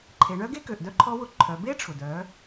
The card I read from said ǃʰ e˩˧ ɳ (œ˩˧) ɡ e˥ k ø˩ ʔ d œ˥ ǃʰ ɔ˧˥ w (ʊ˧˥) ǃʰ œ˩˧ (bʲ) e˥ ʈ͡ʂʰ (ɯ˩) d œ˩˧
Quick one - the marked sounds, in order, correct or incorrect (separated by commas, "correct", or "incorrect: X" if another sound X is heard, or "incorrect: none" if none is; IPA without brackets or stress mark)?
incorrect: œ˥, incorrect: ʊ˩, incorrect: b, incorrect: ʊ˩